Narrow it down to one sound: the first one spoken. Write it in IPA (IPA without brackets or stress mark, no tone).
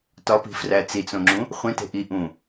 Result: t